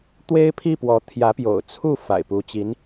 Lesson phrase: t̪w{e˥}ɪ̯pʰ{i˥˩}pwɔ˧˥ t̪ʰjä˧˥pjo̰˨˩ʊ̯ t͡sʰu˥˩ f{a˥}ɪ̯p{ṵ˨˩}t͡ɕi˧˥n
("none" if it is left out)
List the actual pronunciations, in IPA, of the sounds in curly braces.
e˥, i˥˩, a̰˨˩, u˧˥

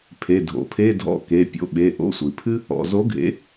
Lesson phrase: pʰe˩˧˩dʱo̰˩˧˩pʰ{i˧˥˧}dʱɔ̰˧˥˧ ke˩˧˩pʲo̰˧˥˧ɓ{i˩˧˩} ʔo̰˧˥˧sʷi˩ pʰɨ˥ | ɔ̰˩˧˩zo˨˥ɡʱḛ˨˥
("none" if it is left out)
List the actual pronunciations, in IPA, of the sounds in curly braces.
e˧˥˧, e˩˧˩

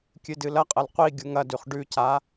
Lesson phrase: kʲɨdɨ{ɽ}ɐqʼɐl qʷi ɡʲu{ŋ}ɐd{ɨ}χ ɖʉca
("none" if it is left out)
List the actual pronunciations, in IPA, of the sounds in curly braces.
l, ŋ, ʉ

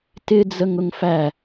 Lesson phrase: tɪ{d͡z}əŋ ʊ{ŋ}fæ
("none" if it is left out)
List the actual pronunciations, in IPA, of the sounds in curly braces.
d͡z, ŋ

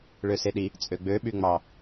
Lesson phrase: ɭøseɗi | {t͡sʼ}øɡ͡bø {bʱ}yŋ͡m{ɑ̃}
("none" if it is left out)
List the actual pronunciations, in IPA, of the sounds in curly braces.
t͡sʼ, ɓ, ɑ

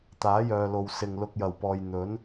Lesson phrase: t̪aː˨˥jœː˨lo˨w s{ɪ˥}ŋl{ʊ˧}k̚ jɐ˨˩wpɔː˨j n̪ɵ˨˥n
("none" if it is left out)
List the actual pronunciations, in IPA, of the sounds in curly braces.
ɪ˨, ʊ˧

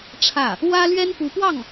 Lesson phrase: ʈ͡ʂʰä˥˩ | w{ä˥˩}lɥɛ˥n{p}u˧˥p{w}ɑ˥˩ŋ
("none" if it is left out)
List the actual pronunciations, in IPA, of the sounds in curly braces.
ä˥, p, w

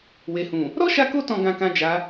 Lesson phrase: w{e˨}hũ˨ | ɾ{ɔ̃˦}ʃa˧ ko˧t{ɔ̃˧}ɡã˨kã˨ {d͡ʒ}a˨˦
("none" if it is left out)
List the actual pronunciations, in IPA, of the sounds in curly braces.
e˨, ɔ˦, ɔ̃˨, d͡ʒ

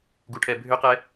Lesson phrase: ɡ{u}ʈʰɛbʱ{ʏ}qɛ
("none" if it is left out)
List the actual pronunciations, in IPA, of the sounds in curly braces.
u, ʏ

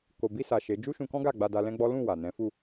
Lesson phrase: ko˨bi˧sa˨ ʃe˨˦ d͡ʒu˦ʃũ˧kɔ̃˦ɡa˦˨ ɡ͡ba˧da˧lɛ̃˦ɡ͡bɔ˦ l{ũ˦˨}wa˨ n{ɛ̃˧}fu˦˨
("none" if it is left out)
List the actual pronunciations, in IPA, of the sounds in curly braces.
ũ˦˨, ɛ̃˨˦

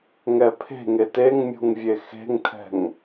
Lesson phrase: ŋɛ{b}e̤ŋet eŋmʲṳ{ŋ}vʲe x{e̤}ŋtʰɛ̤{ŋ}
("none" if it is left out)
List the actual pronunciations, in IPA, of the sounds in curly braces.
pʰ, ŋ, e̤, ŋ

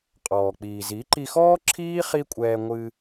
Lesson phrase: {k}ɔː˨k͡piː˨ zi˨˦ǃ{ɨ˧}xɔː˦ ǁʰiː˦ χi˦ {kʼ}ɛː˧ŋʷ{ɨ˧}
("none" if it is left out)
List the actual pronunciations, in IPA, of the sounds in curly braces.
qʼ, i˧, kʷʼ, ɨ˧

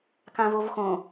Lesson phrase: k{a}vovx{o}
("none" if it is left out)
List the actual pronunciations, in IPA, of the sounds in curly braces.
ã, õ

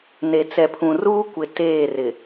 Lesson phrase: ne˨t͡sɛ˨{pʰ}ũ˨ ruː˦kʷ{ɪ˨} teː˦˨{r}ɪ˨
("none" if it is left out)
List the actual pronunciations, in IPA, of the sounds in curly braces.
pʰ, ɪ˨, r

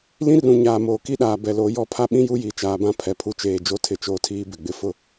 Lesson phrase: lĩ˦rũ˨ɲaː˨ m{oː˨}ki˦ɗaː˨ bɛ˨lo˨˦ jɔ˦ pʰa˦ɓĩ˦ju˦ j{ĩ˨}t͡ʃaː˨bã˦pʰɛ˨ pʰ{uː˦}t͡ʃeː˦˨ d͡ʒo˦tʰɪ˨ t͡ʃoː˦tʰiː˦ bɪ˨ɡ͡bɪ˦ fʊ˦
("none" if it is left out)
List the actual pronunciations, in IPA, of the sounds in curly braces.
oː˨, i˨, u˦

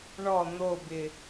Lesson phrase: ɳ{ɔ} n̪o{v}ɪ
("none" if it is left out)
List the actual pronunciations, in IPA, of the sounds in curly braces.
ɔ, b

